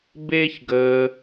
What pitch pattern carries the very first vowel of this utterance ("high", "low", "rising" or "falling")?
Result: high